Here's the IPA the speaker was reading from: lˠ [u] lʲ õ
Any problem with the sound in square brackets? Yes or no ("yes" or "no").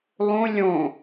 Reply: yes